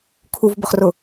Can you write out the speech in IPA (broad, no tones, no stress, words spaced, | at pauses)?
kʰuvbʊχrʊ